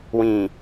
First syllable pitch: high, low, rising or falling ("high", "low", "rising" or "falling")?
low